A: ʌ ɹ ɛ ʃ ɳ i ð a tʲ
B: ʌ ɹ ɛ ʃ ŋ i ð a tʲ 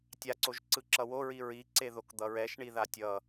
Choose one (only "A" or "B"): A